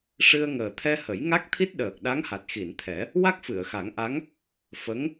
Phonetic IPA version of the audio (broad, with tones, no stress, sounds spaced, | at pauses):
ʂ ɨ˧ ə̯ ŋ əː˨˩ t̪ʰ ɛ˧ h ə˨˩˦ j ŋ a˦˥ k̚ t̪ʰ i˦˥ t̚ ɗ əː˨˩ k̚ ɗ a˧˥ ŋ h a˨˩ t̚ x i˨˩˨ n t̪ʰ ɛ˨˩˦ | w a˦˥ k̚ f ɨ˨˩˨ ə̯ x a˨˩˦ ŋ ʔ a˧˥ ŋ | f ə˧˥ ŋ